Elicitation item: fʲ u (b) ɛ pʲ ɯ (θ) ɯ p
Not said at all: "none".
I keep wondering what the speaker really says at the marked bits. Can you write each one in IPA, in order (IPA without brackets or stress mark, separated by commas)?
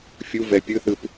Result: v, θ